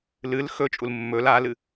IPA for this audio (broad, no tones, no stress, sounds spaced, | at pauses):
l ɨ l x ɵ t͡ʃʼ u l mː ɵ l a l ɨ